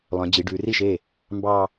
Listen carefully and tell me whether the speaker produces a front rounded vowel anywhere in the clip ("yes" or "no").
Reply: yes